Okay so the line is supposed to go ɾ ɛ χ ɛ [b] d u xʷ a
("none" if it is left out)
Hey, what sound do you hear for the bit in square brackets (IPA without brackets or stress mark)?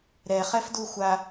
f